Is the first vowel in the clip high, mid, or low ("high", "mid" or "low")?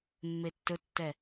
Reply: mid